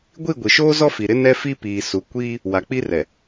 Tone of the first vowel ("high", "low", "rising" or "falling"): falling